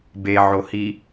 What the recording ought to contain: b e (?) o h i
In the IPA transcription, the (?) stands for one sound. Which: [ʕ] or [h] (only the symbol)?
ʕ